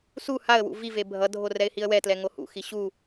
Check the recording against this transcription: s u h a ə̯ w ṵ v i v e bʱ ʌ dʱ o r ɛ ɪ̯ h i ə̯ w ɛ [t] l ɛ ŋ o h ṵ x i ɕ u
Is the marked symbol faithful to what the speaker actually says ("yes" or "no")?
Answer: yes